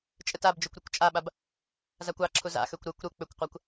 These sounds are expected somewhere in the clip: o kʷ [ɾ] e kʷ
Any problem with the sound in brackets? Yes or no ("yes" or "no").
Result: no